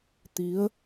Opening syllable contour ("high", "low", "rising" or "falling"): rising